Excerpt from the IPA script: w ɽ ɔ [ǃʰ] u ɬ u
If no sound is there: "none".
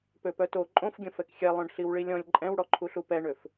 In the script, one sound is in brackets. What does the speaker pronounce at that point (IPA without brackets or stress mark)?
ǃʰ